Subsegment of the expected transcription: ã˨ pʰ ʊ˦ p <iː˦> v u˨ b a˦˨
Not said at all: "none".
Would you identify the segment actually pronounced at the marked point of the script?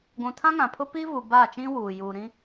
iː˦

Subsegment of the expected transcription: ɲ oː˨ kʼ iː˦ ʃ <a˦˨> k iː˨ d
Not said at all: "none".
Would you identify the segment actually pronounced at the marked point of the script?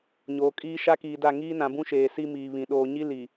a˦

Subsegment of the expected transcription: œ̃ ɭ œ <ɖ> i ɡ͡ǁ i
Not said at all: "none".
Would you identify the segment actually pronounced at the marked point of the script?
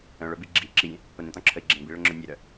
b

